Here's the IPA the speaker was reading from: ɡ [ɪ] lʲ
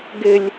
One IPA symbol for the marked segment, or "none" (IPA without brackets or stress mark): ɪ